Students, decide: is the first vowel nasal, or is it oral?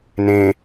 nasal